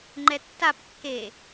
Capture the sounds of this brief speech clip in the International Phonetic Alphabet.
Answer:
ŋ͡ǃ ɛ tː a p kː e

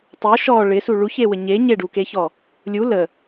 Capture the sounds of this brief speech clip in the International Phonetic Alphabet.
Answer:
tˤ u ʃ ɔ ɭ ɪ s u ɭ u ç e w ə ɲ e ɲ e ɖ u k e ç ɔ | lʲ u l ə

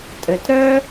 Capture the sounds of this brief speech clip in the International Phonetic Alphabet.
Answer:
tʼ ɘ˨ t ɾ œ˦

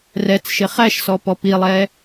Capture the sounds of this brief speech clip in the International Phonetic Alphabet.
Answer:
r ɛ t͡s ʃ ɪ χ æ ʃ s ɔ p ɔ p i lˠ ɛ

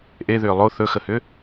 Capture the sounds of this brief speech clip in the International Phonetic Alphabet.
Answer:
ʔ e ð ʏː lˠ o θ ɵ x ə h ʏ

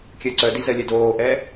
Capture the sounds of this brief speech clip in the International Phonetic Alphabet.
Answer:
kʲ ɜ ǀ œ d i z ɜ lʲ œ d oː ʔ ɛː

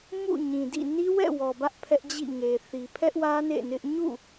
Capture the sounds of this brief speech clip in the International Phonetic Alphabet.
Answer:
m ṵ˦˨ ɲ ĩ˨ d ḭ˦˨ n i˦ w ɛ̰˦˨ w ɔ˨ b ä˦ ʔ pʰ ɛ˦ ʔ d͡ʑ ḭ˦˨ ŋ e˨ θ i˨ pʰ ɛ˦ ʔ w ä˦ n ḛ˦˨ n ɪ˦ ʔ ɲ ṵ˦˨

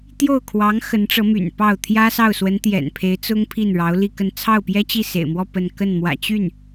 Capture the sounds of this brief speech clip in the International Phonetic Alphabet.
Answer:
t̪ j o˥˩ ʊ̯ kʰ w ɑ˧˥ ŋ x ə˧˥ n ʈ͡ʂ ɤ˧˥ m y̰˨˩ n p ɑ˥˩ ʊ̯ t̪ʰ j ä˥ s ɑ˥˩ ʊ̯ s w ə˧˥ n t̪ j ɛ̰˨˩ n pʰ e˧˥ ɪ̯ t͡s ʊ˥ ŋ pʰ i˥˩ n ɻ ɑ˧˥ ʊ̯ l i˥˧ k ə˥˧ n t͡sʰ ɑ˥˩ ʊ̯ p j ɛ˥ t͡ɕ i˥˩ s ḛ˨˩ ɪ̯ m w ɔ˥˧ p ə˥˧ n k ə˥˩ n m w ä̰˨˩ t͡ɕ y˥˩ n

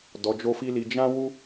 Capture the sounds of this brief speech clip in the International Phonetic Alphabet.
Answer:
d ɔ˧ d͡ʒ o˦ f i˦ l i˧ d͡ʒ ã˦ w u˦

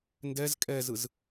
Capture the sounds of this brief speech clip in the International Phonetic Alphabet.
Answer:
n d ɛ z kʼ ɛ z ɯ z

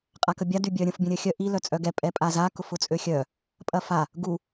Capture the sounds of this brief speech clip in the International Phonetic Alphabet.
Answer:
qʼ a k ə bʲ a d y bʲ œ ɾʲ ə̃ f bʲ ə̃ ɾʲ œ xʲ œ ʔ i l œ t͡sʼ œ ɡ ɛ pʼ ɛ pʼ a z a k ʊ f ʊ t͡sʼ ø xʲ œ | pʼ ɐ f a | ɡ u

